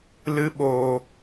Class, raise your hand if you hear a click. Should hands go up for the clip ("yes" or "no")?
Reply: no